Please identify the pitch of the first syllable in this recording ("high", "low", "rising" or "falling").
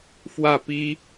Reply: falling